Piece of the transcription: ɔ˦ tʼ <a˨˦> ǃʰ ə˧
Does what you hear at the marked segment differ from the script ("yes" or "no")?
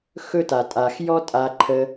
yes